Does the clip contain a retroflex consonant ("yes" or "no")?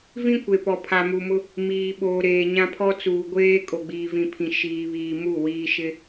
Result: no